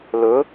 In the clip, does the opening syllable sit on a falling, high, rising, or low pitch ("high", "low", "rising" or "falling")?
rising